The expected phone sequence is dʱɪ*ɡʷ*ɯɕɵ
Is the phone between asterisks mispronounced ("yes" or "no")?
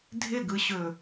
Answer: yes